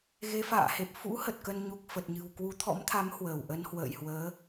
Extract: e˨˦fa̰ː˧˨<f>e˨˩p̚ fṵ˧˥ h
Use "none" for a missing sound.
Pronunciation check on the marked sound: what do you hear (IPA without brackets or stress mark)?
h